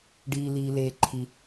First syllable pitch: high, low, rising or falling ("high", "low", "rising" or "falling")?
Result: high